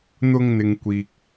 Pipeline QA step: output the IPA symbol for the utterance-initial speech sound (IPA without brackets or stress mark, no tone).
n̪